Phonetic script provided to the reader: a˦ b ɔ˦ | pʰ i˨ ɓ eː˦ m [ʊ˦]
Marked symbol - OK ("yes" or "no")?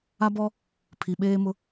yes